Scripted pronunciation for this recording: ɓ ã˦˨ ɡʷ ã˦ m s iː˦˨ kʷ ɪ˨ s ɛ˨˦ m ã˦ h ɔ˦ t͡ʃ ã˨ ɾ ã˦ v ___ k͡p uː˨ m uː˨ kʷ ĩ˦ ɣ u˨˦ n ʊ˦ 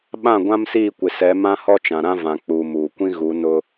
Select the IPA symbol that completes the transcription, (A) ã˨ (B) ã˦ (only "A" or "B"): A